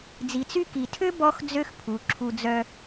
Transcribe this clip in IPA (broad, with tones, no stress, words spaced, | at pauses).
d͡zi˨t͡sy˦ki˨tʰø˥ bɔ˦x d͡zø˥xpʰu˨ ǁʰu˦d͡zœ˥